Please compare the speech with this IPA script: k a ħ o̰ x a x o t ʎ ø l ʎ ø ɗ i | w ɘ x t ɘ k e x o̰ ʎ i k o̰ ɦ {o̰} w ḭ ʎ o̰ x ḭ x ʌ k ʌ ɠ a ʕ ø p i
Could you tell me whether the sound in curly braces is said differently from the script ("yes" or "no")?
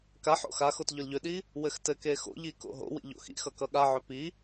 no